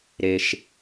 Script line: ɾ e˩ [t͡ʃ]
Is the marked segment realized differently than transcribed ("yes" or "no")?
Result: yes